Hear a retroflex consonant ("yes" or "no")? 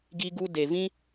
no